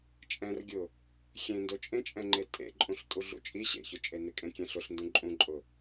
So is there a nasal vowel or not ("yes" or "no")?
yes